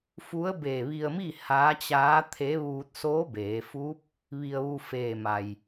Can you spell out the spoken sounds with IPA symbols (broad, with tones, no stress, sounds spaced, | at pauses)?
f u˧˥ ə̯ b e˧˩ ʋ i˧ ə̯ m i˥˨ h aː˧˥ t͡ɕ aː˧˥ t̪ʰ e˧˥ ʋ uː˧ t̚ s oː˧˥ b eː˩˧ f uː˧˥ p̚ | ʋ i˧ ə̯ ʋ u˧ f eː˧˩ m a˩ j